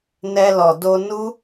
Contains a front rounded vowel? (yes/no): no